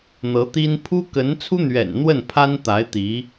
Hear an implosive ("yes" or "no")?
no